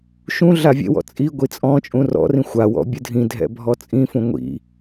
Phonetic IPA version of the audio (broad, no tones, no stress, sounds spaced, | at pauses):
ʃ ũ ɮ a vʲ ḛ w ɔ̰ t͡sʼ i ɡʷ i t͡sʼ ɔ̃ t͡ʃʼ ũ r ɔ̰ r ĩ xʷ a w ɔ̰ bʲ ɯ dʱ ĩ dʱ ɛ̰ bʱ ɔ t͡sʼ ĩ f ũ ŋʷ ḭ